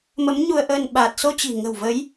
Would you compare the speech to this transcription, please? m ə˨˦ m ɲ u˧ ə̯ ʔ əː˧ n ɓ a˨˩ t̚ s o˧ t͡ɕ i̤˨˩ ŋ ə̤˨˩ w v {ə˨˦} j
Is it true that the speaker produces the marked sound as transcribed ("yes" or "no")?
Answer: yes